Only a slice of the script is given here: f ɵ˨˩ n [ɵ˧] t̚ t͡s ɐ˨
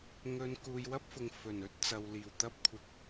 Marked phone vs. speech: incorrect: ɵ˥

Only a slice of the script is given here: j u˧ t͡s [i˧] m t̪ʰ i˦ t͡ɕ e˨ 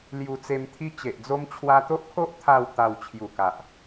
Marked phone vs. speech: incorrect: e˧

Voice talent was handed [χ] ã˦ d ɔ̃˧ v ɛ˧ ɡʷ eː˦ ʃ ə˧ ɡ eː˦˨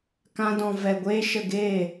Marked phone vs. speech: incorrect: k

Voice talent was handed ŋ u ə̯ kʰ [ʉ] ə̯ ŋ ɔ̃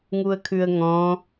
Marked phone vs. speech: correct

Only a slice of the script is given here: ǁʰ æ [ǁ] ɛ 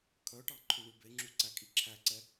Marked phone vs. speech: incorrect: ǀ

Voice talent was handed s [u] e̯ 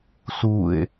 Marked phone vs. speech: correct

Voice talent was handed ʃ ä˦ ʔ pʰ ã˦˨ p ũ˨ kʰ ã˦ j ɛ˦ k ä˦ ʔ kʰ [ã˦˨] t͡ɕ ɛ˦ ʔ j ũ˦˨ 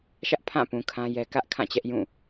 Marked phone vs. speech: correct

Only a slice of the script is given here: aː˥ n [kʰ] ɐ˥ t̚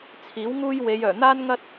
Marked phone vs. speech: incorrect: ŋ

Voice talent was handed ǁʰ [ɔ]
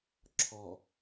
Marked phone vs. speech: correct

